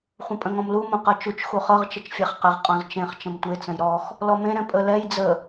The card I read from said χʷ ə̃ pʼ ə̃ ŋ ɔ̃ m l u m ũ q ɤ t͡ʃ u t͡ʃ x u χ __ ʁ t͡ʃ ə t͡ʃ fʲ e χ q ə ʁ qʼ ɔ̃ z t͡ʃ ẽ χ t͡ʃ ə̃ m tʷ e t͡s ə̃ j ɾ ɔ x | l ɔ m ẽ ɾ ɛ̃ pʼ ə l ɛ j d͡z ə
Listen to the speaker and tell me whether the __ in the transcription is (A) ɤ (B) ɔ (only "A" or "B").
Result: A